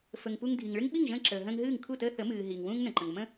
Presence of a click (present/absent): present